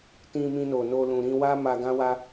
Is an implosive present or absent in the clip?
absent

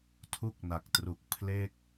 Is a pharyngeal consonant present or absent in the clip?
absent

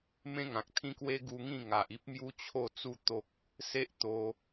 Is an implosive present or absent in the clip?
absent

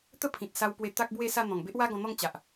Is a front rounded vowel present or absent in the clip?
absent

